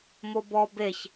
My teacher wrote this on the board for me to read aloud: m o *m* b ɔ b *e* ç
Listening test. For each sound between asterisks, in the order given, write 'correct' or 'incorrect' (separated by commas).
incorrect, correct